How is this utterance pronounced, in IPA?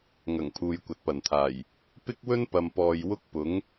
ŋ ɐ˨˩ ŋ pʰ uː˨ j kʷ ɐ˨ t̚ p ɐ˨˩ n t̪ʰ aː˨˩ j | p ɪ˥ k̚ w ɵ˥ n p ɐ˨ m p ɔː˨ j w ʊ˥ k̚ p ʊ˨˥ ŋ

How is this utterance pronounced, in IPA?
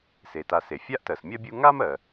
s e˩ t a˨ s e˩ fʲ a˥ ʔ t ɜ˨ s mʲ ɜ˥ bʲ u˦ ŋ a˥ m ɜ˨

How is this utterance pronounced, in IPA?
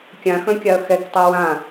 kʲ ã x œ̃ kʲ a ɐ̯ x ɛ k tˤ ɜ w ã

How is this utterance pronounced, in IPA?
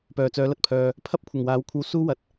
p œː˨˩ t͡s œː˨˧ l ɐ˨ t̚ pʰ œː˨ | pʰ ɐ˥ p̚ kʷʰ ɐ˨˩ ŋ w aː˨˥ w kʷʰ ɐ˧ w s uː˥ w ɐ˨˥ t̚

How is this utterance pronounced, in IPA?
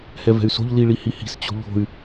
h ɛ v ɛ̤ y̯ s o̤ ʎ l i ɭ i h i h i̤ s t͡ɕ o̤ ʎ o̤ y̯

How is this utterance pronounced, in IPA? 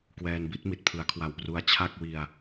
k w ɛː˧ n b i˥˩ t̚ m i˨˩ t̚ pʰ ɯ˩˦ a̯ kʰ w a˨˩ w p r u˧ a̯ t͡ɕʰ a˥˩ k̚ w i˧ a̯

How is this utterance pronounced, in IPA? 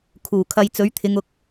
kʰ uː˨˩ kʰ ɐ˧ j t͡s ɵ˨˥ ɥ t̪ʰ ɪ˨˧ ŋ ʊ˨˥ k̚

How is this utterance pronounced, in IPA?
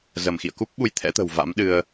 z ə˧˩ m x ḭ˧˨ ə̯ k u˦˥ p̚ ɓ u˧ j t̪ʰ ɛ̰˧˥ t̪ ə̤˨˩ w v a̰˧˥ m ɗ ɨ˧ ə̯

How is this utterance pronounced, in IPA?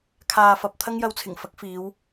kʰ aː˨ f ɐ˨ p̚ t̪ʰ ɐ˥ ŋ j ɐ˧ w t͡sʰ ɪ˨˩ ŋ f ɐ˨˥ k̚ f iː˨˧ w

